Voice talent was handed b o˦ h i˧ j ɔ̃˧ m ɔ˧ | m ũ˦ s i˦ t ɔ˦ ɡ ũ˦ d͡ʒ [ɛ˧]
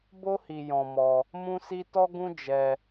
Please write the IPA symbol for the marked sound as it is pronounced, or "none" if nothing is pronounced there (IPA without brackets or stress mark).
ɛ˧